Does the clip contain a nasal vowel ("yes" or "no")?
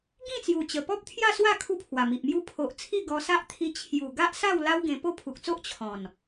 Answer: yes